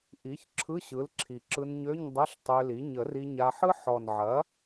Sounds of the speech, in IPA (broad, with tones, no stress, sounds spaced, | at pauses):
ʔ i˩˥ ç ǁʰ ɯ˧˥˧ ɕ ɯ˩˥ l ǁʰ i˨˩ ǁ ɯ˧ n ɲ ø˧˥˧ ɲ dˤ ɐ˧˥˧ ɬ tˤ ø˧ l i˩˥ ɲ ə˨˩˦ r i˧ ɲ a˧ ħ ɯ˥ ħ ɔ˨˩ n ʕ ɐ˩˥